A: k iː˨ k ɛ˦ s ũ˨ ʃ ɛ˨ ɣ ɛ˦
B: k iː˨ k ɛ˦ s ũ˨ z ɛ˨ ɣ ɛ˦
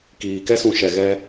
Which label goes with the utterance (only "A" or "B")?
A